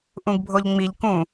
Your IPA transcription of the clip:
ʔ ũ ɡ bʱ o ʎ ŋ͡m i ʎ k ũ

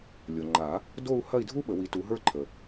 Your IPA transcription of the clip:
lʲ o˨ ŋ͡ǃ a˨˩˦ | d o˥˧ u̯ h ɐ˥˧ i̯ dʱ u˥ ɓ ə˨˩˦ w i˨˦ t u˨˦ ɦ ə˞˥˧ ǃʰ ə˨

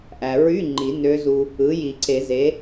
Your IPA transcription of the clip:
ʔ æ˩ ɹ y˧˥˧ ŋ͡ǃ i˨˩˦ n ø˧˥ z u˧ | ɯ˩˥ j i˨˩˦ ǀ e˨˩˦ z e˩˥

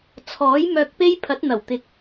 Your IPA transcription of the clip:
t͡sʰ ɔː˨˥ j m œː˧ k̚ p e˥ j pʰ ɐ˨˥ t̚ n̪ ɐ˨˩ w t̪ ɪ˨ k̚

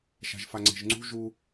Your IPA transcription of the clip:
ʃ a̤ ʒ f a ŋ͡ǀ e̤ ʒ ŋ͡ǀ ṳ ʒ u

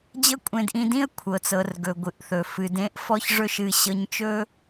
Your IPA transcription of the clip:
d͡ʑ ɤ˥ kʷʼ ẽ˧ d ʔ ĩ˧ d ĩ˥ ə̯ kʷʰ ɤ˩ t͡s ɤ˩ r ɡ ɵ˩ ɡʷ ɨ˩ ʔ θ ɵ˩ f ɨ˩ d ẽ˥ ʔ f ɔ˥ ç ʐ ɵ˥ ʃ ɨ˧ ɕ ɤ˧ ɲ t͡ʃ ɵ˥

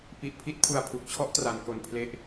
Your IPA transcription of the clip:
p i˨˩ ʔ pʰ i˥˩ t̚ pʰ u˨˩ a̯ pʰ u˨˩ k̚ t͡ɕʰ ɔ˦˥ ʔ t r a˩˦ n k o˨˩ n pʰ l e˦˥ ʔ

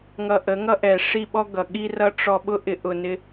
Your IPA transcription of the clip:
ŋ ʌ˧ ʔ ə˨˦ ŋ ʌ˦ ʔ ɛ˨ ʂ i˦˨ ɓ ɔ˦ ɡ ʌ˨ ɠ i˦ r ʌ˦ ʈ͡ʂ ɔ˧ ɓ ʊ˦ ʔ ɪ˧ ʔ ʊ˨ n ɪ˧

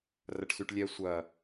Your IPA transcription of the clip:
r ɐ ʈ s y ʈ lʲ ɛ sʷ ɐ

